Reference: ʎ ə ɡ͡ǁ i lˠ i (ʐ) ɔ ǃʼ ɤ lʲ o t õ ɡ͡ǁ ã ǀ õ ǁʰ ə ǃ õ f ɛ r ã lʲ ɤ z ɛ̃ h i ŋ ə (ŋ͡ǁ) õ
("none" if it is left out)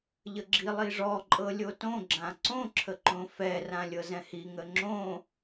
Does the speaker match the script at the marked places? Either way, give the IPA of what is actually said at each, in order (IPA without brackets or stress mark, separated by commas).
ʐ, ŋ͡ǁ